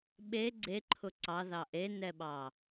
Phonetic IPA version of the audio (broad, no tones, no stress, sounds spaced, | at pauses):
ɓ e ɡ͡ǀ e ǃʰ ʊ ǀ ɑ ð ɑ ʔ e n ɛ ɓ ɑ